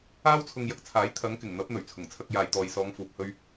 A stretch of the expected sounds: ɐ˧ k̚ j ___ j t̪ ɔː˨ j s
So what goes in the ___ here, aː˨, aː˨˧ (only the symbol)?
aː˨